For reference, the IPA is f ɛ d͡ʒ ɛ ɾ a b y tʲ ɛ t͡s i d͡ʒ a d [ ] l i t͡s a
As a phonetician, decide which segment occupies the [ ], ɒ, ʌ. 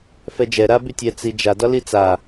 ɒ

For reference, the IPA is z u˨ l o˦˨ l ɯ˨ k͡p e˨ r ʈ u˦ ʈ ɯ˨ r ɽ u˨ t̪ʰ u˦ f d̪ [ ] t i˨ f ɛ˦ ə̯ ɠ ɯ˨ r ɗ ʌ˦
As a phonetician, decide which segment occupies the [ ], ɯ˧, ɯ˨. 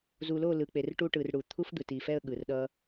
ɯ˨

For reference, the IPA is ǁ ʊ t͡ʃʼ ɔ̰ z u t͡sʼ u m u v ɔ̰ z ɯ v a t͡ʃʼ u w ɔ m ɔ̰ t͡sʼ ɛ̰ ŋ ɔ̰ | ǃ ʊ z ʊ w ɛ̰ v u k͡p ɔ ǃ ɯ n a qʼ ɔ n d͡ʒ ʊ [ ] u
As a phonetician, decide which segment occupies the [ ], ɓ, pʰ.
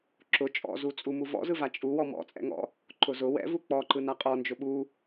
ɓ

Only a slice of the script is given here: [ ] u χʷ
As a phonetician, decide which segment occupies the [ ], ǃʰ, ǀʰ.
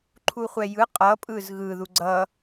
ǃʰ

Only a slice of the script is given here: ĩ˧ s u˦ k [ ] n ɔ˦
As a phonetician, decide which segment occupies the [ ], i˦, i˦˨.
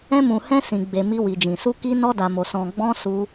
i˦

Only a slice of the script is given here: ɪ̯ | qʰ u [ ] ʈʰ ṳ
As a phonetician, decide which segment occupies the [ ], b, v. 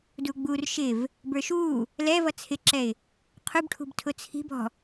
b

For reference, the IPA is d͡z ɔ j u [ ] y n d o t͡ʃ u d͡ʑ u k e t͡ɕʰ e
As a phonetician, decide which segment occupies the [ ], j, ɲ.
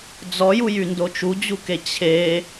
j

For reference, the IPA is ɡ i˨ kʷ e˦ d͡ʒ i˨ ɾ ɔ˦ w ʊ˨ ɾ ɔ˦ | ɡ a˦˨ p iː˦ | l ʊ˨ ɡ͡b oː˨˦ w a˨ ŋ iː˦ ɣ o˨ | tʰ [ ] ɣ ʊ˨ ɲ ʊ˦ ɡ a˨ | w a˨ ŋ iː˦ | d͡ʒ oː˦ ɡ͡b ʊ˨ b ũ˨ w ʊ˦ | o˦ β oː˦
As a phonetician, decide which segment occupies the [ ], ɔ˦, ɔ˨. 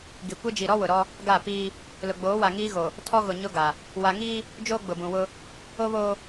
ɔ˦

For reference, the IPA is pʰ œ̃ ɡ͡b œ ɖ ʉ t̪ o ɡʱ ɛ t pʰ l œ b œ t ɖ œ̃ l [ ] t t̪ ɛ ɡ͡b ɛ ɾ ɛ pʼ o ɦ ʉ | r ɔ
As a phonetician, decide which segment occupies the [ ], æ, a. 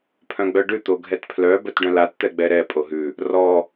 a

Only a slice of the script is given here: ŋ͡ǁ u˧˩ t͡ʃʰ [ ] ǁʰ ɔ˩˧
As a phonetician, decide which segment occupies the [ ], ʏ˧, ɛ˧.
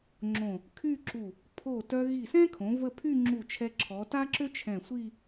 ɛ˧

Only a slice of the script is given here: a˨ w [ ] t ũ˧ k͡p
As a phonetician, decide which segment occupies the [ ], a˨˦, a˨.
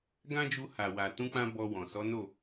a˨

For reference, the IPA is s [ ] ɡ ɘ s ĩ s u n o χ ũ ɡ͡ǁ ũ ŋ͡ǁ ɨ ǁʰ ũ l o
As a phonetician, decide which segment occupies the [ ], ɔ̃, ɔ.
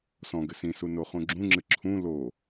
ɔ̃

